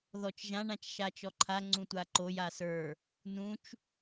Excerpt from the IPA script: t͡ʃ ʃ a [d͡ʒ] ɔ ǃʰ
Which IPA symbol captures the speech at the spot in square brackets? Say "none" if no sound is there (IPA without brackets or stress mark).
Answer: t͡ʃ